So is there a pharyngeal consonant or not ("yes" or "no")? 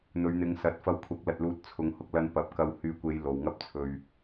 no